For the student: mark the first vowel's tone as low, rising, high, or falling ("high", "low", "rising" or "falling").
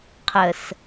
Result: low